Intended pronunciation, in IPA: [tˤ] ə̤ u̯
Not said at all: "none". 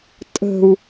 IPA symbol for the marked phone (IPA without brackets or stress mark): tʼ